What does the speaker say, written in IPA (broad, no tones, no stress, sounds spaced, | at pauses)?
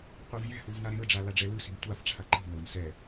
qʷ i v j ɛ̤ h u v n a ɾ ẽ ɾ ɯ ɖ͡ʐ a l a ɖ͡ʐ ɛ l ɯ s i̤ m tʷ a f ʈ͡ʂʰ a ǃ i̤ n ɤ n s ɛ